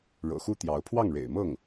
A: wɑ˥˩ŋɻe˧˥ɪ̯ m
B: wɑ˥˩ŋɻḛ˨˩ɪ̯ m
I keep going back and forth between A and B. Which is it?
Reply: B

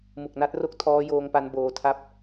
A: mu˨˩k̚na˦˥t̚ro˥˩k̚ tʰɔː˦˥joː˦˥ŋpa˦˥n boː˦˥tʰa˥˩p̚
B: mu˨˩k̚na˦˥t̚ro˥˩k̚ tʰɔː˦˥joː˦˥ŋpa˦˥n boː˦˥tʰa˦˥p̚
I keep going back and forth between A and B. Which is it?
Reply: A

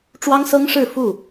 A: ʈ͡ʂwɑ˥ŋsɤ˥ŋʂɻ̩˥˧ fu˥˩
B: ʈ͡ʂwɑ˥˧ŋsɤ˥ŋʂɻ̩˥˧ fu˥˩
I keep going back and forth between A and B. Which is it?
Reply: A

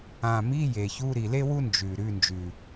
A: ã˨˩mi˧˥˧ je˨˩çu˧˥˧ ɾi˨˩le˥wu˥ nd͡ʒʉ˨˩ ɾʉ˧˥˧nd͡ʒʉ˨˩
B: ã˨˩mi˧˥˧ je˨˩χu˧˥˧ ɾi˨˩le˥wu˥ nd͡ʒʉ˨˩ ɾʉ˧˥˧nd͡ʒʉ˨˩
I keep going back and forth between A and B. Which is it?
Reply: A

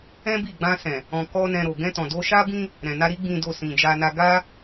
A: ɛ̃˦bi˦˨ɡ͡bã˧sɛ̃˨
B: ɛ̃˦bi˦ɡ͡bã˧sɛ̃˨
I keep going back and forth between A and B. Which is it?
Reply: A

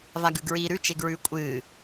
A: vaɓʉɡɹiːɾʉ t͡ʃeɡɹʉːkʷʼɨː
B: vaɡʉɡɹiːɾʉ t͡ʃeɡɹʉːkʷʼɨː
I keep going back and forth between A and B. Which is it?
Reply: B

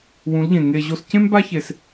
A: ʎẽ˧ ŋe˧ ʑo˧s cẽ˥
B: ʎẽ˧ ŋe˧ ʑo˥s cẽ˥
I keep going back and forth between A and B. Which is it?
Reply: B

